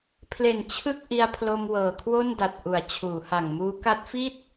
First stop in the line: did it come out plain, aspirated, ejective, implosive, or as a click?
aspirated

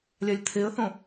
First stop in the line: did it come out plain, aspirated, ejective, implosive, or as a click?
aspirated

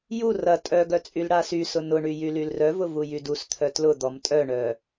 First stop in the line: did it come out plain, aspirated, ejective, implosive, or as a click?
ejective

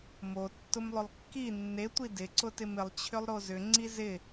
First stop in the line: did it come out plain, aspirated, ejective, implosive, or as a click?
plain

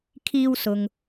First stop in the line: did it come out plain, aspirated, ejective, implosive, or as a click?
aspirated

